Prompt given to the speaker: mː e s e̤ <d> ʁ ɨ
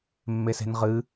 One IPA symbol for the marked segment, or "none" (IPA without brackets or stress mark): n